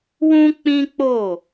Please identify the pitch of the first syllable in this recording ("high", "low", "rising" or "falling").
high